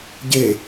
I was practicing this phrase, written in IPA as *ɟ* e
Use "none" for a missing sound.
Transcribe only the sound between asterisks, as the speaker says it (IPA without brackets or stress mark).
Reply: ɟ